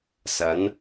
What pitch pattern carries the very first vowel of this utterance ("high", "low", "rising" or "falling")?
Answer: rising